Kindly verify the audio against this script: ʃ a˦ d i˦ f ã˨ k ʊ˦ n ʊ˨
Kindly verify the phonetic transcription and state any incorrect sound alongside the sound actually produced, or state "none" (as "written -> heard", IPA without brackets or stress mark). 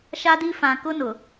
none